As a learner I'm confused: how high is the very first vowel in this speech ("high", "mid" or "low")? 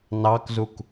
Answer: low